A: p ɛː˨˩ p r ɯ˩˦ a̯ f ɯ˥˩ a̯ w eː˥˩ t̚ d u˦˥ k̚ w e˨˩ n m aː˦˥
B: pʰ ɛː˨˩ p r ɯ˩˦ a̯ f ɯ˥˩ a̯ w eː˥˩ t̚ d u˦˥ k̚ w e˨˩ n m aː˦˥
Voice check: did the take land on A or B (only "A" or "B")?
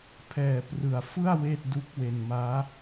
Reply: B